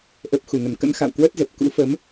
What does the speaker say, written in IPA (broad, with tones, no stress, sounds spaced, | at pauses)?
ʔ ə˨˩ p̚ x u˧˩ ŋ ə˧˩ n k ə̰˧˥ n x a̰˧˨ w k w ə˦˥ t̚ z ə˨˩ p̚ k ṵ˧˥ f ə˨˦ m